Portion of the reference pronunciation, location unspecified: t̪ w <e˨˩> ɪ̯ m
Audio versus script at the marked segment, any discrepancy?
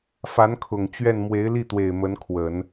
no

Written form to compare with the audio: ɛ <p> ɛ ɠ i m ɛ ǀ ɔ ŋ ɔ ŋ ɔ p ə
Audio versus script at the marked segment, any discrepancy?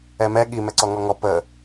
yes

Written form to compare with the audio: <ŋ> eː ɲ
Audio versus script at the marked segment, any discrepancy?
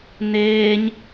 yes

